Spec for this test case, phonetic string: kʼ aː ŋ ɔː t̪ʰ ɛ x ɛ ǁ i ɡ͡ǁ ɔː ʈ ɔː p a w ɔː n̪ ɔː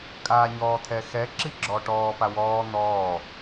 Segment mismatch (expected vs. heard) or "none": ŋ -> ɲ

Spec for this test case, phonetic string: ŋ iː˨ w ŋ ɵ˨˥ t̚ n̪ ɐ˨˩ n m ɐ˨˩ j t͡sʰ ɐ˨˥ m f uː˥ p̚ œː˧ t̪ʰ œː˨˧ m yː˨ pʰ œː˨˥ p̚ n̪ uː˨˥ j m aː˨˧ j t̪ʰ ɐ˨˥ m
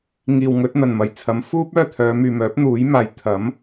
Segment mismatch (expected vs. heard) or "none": pʰ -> m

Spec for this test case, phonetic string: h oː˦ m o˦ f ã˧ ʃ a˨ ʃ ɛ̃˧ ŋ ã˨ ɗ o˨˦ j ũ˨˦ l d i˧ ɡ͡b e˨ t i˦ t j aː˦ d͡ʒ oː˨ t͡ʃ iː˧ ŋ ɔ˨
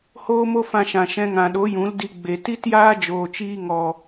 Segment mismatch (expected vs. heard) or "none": a˨ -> ã˨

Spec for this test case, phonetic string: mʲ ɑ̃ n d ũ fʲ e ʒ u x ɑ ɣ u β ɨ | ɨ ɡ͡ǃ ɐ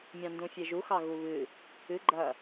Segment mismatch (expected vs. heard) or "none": none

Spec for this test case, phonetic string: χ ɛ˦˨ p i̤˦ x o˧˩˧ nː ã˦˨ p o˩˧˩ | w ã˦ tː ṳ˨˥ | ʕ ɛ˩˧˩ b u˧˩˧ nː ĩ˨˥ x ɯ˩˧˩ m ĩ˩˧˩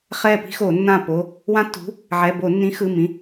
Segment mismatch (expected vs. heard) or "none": u˧˩˧ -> o˧˩˧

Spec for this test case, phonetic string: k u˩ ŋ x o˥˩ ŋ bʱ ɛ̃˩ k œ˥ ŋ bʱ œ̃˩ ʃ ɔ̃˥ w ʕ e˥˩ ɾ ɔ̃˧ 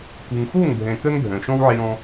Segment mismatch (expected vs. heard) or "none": e˥˩ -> e˧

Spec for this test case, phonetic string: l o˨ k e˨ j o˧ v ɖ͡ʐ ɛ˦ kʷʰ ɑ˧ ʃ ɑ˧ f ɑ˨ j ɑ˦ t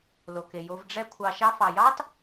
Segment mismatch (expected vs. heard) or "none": none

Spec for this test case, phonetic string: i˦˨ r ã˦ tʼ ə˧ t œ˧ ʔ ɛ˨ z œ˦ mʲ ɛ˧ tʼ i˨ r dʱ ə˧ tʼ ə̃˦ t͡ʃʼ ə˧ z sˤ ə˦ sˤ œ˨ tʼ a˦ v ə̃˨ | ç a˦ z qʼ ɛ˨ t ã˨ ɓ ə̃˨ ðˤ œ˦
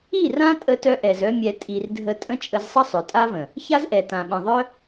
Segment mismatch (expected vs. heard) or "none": qʼ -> ʔ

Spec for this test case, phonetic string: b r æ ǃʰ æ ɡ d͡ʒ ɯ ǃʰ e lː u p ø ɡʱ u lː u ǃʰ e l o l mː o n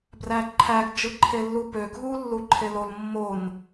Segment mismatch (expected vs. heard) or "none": none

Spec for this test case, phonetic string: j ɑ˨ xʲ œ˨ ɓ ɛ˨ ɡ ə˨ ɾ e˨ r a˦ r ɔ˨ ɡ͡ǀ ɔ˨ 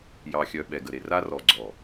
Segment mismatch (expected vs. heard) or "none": none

